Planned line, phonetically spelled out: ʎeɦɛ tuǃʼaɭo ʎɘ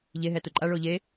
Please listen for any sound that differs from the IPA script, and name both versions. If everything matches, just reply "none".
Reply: ɘ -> e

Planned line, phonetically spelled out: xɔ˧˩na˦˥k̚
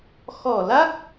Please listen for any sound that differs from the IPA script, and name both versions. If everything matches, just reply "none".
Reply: n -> l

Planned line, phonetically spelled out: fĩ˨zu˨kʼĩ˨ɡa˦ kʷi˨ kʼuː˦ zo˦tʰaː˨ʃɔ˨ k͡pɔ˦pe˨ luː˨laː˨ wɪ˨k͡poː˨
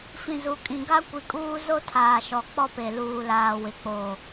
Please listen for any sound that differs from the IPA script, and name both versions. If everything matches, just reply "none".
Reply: none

